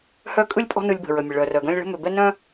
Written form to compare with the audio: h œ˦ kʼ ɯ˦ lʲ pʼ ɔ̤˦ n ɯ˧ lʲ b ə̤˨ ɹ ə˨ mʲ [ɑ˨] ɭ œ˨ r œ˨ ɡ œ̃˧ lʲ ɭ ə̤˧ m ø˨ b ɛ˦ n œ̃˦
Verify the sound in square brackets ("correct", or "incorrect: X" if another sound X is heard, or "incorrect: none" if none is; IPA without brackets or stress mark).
incorrect: ə˨